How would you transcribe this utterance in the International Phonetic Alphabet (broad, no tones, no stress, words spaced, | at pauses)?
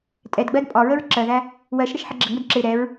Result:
tʼɛdɡ͡bɜd pʼɒɹəɹ ǁɜðæ | wɜʃɾəʃ ħəɡ͡ǁəŋ͡mʊd ǁɪ ɾɛɹ